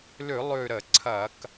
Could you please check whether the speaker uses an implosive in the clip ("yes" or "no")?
no